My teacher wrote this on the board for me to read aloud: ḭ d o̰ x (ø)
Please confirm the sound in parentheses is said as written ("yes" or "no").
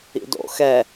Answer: no